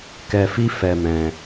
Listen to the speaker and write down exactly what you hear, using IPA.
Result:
k ɛ˧ f i˦ f ɛ˧ m ɛ̃˧

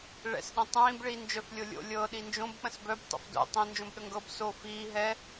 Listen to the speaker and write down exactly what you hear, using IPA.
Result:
ɭ ɛ̰ s ɗ ə̃ tˤ ĩː b ɭ iː n d͡ʒ œ f lʲ o lʲ o̰ lʲ ɤ ɗ i n d͡ʒ õ b k͡p ə̃ s b œ b tˤ ə̰ f d o̰ tˤ ĩ n d͡ʒ õ b ɗ ə ŋ ɡ ɤ b s o f iː ɦ ɛ

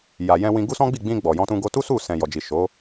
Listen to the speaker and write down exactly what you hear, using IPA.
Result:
j a˨ j ɛ̃˧ w ĩ˧ ɡ u˦ s ɔ̃˦ ɡ͡b i˦˨ ɡ͡b ĩ˧ ɡ͡b ɔ˨ j ɔ̃˧ t ũ˧ ɡ o˧ t u˦ s u˦˨ s ɛ̃˨ j ɔ˨ d͡ʒ i˨ ʃ o˨˦

